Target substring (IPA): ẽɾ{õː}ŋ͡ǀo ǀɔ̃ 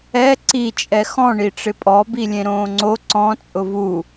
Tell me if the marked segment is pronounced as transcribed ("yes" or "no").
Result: yes